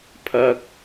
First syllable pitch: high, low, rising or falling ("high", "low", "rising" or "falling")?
high